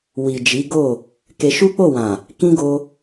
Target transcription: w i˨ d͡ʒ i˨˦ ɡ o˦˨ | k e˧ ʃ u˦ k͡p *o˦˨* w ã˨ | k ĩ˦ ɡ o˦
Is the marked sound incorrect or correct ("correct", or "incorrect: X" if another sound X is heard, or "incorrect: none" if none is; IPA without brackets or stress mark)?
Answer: correct